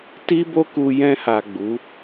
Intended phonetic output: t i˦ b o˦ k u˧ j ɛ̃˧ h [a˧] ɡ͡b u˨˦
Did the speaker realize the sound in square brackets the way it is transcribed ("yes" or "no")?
no